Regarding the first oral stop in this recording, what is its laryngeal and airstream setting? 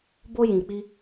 plain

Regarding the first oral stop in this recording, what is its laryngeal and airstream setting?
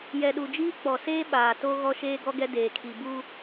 implosive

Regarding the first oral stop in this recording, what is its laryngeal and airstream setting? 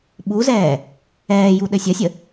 implosive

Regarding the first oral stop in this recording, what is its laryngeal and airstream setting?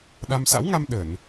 implosive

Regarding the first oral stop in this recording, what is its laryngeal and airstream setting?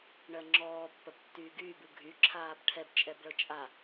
click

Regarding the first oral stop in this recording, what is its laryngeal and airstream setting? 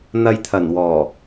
aspirated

